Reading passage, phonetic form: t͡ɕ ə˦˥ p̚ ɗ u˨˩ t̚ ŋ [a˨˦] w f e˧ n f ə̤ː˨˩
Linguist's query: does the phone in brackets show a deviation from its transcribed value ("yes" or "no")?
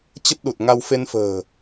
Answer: yes